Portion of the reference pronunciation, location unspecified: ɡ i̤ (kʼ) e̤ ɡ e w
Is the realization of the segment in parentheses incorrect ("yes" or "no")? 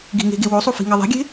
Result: yes